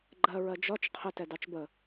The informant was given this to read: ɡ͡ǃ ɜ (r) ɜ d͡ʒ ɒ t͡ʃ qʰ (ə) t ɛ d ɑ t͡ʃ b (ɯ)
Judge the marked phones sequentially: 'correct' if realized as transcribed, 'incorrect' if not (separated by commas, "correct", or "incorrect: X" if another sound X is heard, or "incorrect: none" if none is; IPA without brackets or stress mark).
incorrect: ɹ, correct, incorrect: ə